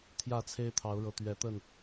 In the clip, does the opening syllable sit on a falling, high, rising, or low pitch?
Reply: falling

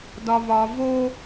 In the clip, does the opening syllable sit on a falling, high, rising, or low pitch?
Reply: high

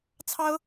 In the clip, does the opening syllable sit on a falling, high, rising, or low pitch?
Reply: high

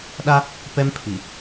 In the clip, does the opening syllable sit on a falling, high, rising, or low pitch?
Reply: high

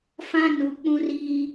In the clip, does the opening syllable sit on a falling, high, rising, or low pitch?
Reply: high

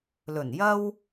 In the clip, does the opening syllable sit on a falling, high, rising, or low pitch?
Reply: low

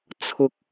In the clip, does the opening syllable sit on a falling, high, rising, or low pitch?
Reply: high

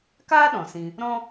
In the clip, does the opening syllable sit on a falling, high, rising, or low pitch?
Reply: high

